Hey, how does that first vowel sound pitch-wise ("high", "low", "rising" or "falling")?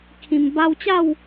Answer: low